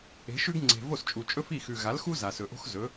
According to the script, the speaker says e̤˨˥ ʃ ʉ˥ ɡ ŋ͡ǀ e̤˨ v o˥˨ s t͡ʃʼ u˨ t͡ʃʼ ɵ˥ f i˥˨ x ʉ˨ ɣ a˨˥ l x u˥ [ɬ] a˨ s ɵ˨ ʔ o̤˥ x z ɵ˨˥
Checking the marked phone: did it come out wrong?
yes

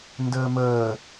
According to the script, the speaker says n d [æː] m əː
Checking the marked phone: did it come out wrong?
yes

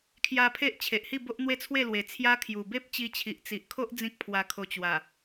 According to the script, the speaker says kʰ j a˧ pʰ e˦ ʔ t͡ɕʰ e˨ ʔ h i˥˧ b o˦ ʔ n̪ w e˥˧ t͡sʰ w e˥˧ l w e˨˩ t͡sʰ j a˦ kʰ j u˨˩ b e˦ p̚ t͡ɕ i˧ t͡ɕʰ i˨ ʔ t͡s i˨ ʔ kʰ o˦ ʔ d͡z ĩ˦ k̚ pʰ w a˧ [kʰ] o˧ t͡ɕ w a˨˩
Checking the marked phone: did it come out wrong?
no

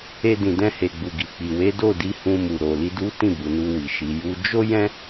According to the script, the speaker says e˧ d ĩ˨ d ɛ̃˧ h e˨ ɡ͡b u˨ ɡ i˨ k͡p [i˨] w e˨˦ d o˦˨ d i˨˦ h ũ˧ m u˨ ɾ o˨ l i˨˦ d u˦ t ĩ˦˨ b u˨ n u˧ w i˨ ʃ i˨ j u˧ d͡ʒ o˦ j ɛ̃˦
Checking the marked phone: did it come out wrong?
no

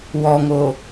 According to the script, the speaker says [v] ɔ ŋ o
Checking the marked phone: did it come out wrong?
yes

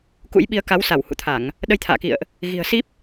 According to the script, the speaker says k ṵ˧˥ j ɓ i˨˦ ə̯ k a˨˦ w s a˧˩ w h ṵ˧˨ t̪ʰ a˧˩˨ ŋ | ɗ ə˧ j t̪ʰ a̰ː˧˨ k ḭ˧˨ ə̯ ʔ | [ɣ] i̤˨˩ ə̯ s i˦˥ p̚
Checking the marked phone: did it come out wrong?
no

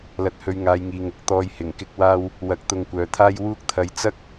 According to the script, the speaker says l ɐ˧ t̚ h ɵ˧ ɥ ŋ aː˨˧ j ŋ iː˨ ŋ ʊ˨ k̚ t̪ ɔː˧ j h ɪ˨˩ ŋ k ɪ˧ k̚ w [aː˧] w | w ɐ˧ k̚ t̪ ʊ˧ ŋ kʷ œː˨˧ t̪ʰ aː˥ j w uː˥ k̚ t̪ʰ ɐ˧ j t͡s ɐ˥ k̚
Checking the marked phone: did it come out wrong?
no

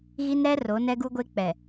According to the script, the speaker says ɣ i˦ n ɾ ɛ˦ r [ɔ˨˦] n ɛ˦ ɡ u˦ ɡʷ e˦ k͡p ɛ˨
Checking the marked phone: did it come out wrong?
yes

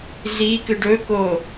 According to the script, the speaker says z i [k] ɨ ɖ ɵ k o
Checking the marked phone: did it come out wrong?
no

